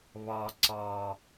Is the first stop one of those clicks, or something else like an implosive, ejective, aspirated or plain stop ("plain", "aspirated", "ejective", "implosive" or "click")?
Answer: click